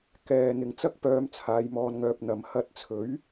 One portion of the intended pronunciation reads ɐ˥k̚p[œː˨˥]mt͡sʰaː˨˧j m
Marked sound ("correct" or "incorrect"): incorrect